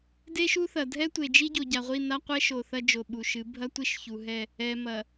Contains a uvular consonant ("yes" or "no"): yes